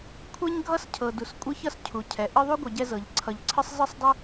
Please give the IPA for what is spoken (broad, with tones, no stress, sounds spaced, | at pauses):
kʷʰ ɛ˥ ɲ ɡʱ ʌ˥ s cʰ ɤ˩ d u˩ s kʷʼ ɤ˥ ç ʌ˥ s cʰ u˩ cʰ ɛ˩ ʔ ɨ˦ ðˤ u˥ ɡʷ ʌ˨ ɟ ɛ˦ z ɤ˩ ʎ ǀʰ ʌ˨ ʎ ǀʰ ɨ˥ sˤ z ɨ˥ sˤ dˤ ɨ˥